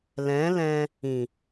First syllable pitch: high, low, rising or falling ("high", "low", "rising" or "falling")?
rising